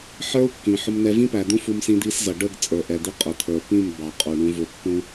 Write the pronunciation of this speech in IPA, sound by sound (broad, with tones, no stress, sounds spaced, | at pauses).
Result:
ħ ə˞˦ u̯ kː ĩ˨ ħ ʊ˦ m n̪ ɛ˦ v ĩ˦ p æ˨ d̪ ũ˦ f u˦ m s ĩ˦ d̪ i˦ s z ʌ˨ ɖ ə˦˨ ɡ t͡sʼ ə˞˨ ʔ ɛ˨ d̪ i˦ qʼ ʊ˨ t̪ʰ ə˞˨ p ĩ˦˨ m b ɑ˨ qʼ u˨ ɳ ũ˦ v ʊ˦ pː ũ˦